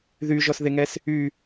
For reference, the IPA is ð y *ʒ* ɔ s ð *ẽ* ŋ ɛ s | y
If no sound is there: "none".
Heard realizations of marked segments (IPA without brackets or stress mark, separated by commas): ʒ, e